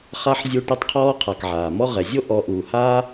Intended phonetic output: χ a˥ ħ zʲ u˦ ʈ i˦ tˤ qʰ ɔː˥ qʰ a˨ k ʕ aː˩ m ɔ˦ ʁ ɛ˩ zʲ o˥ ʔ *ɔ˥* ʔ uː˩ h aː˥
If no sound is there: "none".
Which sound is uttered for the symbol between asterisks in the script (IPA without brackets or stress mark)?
ɔ˨